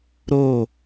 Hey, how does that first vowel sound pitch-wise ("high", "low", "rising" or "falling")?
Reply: falling